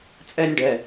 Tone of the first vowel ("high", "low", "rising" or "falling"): high